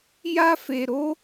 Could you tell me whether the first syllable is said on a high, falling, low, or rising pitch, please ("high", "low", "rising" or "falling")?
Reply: high